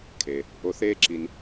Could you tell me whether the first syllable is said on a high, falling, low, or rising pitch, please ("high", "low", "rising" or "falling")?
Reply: low